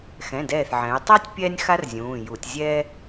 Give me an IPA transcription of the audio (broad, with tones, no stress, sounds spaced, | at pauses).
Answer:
x ɛ̃˩˧˩ d ɛː˧˩ θ ʕ ɛ̃˩˧ y̯ tˤ a˥ tʲ pʲ ɛː˥ nʲ x a˥ r zʲ ũː˩˧˩ j u˧˩˧ tʲ zʲ ɛː˥